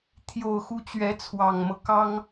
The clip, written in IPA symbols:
t̪ʰ j o˥˩ ʊ̯ x u˥ t͡ɕ ɥ ɛ˧˥ t͡sʰ w ɑ˨˩ ŋ m ɤ˦ k ɑ˥ ŋ

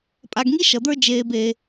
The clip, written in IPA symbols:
pʼ a˨ ɡ ŋ i˥ ʃ ʌ˩ d̪ ə˞˥ d͡ʒ eː˨ b e˨

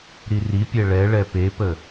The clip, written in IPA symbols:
ɾ i r i pʲ ɛ ɭ ɛ ɭ ɛ p e p ə

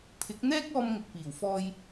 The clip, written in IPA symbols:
pʰ ɪ˨˥ k̚ n̪ ɛː˥ k̚ ɔː˧ m ŋ ʊ˨ k̚ p iː˨˩ w f ɔː˧ j

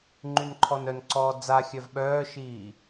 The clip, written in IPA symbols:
ŋ͡ǃ y n ǃʰ ɔ n œ n ǀ ɔː d͡z a xʲ œ v ɓ œː ʃ iː

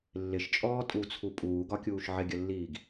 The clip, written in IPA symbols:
lː ɪ ʃ t͡ʃʼ ɔː tʼ u t͡sʰ u pʼ uː ɡ ɒ kʲ uː ʃ ʕ ɪ ɡʲ ə lː iː ɡ

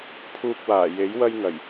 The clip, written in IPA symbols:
pʰ uː˧ k̚ w aː˨˩ j e˨˥ j w ɐ˧ j ŋ ɐ˨˩ j

